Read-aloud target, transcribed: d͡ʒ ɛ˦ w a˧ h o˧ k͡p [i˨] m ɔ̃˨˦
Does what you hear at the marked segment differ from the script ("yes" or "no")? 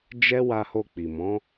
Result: no